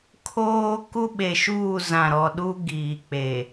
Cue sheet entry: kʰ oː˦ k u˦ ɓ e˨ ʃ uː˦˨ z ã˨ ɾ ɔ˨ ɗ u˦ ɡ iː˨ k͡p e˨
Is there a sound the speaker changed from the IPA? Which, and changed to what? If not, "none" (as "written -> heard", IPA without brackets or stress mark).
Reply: none